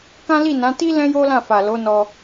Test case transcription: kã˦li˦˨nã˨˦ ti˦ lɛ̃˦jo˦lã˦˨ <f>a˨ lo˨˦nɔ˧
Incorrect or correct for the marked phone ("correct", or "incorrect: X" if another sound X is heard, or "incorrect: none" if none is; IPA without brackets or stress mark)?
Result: correct